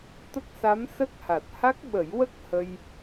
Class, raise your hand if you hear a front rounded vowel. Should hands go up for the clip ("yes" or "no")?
no